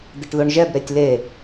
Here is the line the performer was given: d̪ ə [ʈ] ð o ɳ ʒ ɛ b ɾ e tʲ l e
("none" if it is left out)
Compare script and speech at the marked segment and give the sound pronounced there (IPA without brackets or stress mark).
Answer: ʈ